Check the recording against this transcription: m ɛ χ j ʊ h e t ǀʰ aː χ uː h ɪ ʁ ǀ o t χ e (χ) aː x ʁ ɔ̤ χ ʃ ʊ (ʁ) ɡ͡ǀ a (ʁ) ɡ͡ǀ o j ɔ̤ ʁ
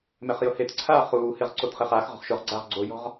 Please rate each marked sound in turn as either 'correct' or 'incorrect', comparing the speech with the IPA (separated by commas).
correct, correct, correct